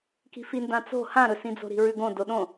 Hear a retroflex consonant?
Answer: no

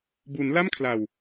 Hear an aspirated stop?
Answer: yes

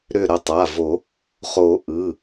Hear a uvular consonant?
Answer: yes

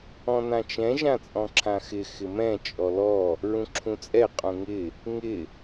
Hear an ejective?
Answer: yes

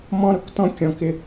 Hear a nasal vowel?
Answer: yes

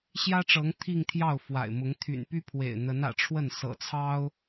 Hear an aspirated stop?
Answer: yes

